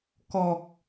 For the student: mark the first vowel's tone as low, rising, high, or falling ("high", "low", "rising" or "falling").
low